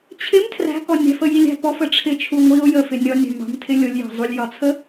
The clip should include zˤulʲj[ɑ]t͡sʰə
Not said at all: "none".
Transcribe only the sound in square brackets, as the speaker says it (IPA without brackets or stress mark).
ɒ